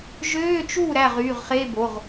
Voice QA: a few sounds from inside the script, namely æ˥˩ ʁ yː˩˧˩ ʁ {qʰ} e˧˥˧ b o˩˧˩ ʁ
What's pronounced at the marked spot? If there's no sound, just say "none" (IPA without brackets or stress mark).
χ